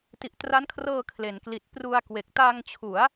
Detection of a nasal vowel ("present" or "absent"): absent